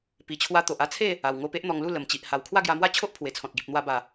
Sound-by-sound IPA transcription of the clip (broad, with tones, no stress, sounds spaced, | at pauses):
p i˨˩ t͡ɕʰ w a˧ t̪ o˨ ʔ a˥˧ t͡sʰ e˥˧ | a˨˩ w ŋ o˧ p e˦ ʔ n̪ ɔ˧ ŋ l u˥˧ l ə˨˩ m t͡ɕ i˨ ʔ h a˨˩ w kʰ w a˥˧ ɡ j a˧ m w a˥˧ t͡ɕʰ o˦ ʔ pʰ w e˨˩ t͡sʰ ɔ̃˨ t̚ ɡ i˨ p̚ n̪ w a˧ b a˨˩